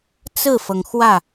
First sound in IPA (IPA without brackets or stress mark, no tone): t͡s